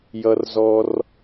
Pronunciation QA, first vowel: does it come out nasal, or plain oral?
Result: oral